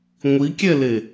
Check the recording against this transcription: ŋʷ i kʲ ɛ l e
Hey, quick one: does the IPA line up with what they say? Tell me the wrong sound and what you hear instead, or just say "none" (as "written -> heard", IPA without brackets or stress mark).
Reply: none